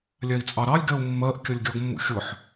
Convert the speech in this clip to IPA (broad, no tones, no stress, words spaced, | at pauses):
lʲæi̯t͡sʼɑɾɑlʲ ɡɛu̯mːɜʔ kʲʌlʲɡʲɒɡmːṵxʲʊħ